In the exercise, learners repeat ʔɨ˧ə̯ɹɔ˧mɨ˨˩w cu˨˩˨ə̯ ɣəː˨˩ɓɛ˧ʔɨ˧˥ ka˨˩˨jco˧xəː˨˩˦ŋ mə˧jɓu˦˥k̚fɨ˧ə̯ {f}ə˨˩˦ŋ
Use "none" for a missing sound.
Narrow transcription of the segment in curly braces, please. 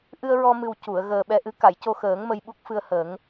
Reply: h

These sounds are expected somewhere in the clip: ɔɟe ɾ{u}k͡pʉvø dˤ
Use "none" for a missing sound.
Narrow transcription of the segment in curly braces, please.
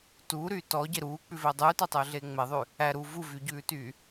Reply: uː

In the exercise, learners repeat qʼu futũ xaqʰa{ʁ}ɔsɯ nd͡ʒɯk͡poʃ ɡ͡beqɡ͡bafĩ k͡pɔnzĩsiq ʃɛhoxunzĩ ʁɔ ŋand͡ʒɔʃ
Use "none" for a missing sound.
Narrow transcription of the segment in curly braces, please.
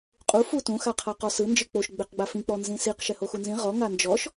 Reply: q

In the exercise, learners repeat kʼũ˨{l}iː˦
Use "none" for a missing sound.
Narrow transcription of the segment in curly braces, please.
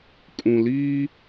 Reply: l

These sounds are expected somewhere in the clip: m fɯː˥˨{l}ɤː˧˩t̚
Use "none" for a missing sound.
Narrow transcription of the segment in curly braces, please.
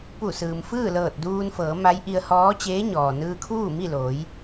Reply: l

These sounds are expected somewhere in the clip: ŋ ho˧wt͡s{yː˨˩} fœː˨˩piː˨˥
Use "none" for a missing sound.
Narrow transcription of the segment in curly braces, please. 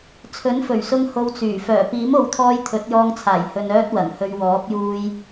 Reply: yː˨˩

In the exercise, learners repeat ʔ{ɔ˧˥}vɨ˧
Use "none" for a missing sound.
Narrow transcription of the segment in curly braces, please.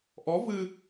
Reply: ɔ˧˥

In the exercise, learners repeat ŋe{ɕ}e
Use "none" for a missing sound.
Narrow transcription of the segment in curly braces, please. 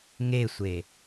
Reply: sʷ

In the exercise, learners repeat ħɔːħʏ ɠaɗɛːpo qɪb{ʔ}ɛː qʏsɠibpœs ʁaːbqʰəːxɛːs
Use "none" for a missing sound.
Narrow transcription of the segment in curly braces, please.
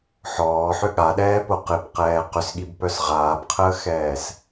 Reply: q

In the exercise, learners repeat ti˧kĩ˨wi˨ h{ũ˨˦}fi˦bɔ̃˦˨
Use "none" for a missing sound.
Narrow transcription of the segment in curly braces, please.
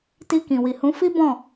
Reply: ũ˨˦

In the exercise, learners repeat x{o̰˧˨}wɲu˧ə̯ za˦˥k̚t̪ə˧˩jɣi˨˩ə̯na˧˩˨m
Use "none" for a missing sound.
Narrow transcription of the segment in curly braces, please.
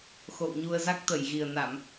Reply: o̰˧˨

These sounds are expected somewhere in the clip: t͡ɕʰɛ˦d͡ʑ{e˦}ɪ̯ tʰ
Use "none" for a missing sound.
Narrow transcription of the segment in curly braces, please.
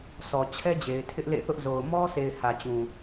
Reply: e˨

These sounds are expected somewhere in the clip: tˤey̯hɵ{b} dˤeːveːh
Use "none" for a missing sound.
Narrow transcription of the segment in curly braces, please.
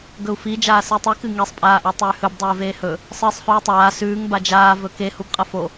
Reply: b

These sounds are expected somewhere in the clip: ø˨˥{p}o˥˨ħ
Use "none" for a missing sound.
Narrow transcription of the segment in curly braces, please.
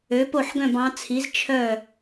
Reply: p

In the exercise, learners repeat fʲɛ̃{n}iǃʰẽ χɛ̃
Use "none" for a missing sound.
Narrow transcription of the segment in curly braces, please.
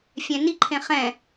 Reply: n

